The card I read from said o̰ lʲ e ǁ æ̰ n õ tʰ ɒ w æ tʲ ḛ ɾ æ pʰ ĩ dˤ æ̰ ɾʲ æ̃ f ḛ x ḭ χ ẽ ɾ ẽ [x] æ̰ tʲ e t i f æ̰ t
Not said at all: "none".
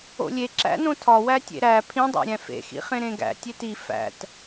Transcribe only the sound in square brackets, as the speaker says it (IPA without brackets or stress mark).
ɡ